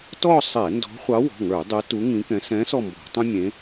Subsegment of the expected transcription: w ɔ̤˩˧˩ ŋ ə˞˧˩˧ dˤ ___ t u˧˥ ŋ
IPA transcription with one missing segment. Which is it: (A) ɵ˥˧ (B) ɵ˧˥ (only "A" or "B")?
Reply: B